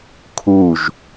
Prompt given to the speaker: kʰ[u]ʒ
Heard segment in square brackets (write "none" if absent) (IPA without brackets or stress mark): u